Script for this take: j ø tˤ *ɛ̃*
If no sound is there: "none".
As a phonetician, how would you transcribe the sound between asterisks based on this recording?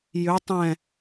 ɛ̃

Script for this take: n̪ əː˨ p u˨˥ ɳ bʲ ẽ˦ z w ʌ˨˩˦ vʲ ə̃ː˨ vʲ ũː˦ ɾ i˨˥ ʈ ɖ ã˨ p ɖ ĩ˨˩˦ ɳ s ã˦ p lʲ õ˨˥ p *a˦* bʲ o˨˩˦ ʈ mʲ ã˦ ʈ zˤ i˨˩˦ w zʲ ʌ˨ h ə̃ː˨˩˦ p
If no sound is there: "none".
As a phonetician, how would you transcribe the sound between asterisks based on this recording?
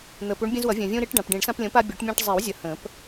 a˦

